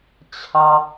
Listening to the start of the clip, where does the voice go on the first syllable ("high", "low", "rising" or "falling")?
high